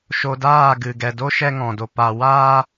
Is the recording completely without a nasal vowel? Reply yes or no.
no